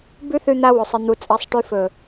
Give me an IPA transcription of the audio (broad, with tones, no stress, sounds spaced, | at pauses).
b ʉ˦ θ ʉ˧ n̪ a˧ w o˨ sˤ ɨ˨ n̪ u˨ t͡sʼ ɐ˨˦ sˤ ʈ ʉ˧ f ɵ˨